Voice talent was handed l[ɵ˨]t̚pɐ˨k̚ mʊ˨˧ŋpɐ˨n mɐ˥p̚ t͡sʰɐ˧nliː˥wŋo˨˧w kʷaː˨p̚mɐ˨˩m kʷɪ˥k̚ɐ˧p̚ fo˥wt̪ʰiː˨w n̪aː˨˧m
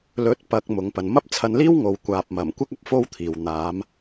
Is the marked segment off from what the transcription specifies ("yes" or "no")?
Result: yes